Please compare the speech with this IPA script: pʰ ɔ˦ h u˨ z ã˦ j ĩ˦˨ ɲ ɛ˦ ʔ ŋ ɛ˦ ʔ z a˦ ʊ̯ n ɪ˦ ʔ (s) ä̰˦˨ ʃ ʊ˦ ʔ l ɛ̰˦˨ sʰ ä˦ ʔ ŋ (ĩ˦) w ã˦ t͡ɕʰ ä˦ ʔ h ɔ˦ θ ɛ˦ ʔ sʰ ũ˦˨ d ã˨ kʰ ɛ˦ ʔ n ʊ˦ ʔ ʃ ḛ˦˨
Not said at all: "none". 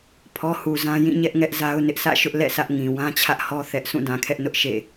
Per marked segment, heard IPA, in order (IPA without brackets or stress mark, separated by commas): s, ĩ˨